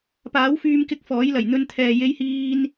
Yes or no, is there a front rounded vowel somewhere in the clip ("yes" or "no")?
yes